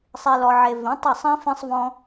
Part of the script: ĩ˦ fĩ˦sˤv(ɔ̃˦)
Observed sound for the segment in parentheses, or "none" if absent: ɔ̃˦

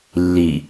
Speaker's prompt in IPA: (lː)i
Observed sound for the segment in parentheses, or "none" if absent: lː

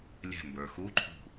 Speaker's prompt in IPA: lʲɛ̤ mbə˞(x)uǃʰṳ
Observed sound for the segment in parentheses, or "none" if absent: x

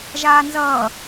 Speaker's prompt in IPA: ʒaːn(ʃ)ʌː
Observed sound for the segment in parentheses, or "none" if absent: z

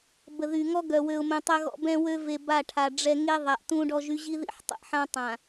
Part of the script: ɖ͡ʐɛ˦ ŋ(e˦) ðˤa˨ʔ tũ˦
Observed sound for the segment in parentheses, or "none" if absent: e˦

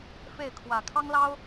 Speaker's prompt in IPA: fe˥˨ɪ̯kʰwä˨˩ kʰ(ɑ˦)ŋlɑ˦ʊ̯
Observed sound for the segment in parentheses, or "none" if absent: ɑ˦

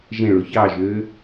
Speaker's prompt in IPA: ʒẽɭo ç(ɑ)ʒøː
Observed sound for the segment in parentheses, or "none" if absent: ɑ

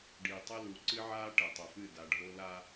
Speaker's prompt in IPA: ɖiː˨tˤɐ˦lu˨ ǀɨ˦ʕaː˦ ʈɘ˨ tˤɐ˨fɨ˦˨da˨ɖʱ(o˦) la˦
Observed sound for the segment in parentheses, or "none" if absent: o˦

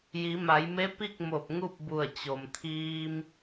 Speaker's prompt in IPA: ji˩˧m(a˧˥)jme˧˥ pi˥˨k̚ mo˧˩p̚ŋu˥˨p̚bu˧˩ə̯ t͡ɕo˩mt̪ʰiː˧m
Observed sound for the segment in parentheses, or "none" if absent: a˩˧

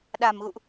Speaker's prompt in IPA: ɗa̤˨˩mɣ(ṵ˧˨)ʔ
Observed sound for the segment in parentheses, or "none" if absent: ṵ˧˨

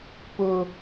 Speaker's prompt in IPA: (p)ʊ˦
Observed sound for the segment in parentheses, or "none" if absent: p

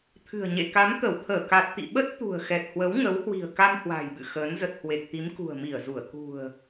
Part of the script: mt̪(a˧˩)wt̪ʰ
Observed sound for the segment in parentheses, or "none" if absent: ə˧˩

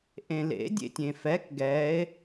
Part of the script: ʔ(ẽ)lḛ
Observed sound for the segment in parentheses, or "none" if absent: ẽ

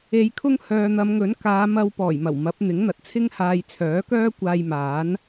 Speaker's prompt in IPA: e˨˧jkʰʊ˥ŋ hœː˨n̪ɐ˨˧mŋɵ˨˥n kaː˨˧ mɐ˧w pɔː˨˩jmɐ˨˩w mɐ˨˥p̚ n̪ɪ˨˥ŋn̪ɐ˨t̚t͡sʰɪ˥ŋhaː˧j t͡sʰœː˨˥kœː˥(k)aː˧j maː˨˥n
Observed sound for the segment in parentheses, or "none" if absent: kʷ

